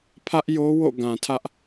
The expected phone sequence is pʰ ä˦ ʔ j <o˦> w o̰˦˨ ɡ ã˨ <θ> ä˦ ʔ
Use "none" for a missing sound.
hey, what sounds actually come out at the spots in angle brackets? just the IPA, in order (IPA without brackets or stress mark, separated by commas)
o˦, tʰ